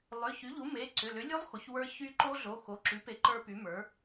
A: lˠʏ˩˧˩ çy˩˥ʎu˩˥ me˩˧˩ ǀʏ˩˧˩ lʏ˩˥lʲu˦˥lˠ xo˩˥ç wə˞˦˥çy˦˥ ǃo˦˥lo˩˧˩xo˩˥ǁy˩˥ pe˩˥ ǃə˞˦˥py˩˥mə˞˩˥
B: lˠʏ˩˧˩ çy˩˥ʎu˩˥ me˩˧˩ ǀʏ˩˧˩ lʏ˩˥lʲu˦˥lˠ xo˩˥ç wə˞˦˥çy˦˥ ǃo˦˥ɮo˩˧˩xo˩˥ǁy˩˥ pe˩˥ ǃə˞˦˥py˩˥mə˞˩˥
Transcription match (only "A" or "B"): B